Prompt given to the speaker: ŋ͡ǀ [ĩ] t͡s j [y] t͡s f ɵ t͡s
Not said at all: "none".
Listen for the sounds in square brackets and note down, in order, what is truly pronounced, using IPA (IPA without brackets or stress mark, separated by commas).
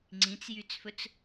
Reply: ĩ, y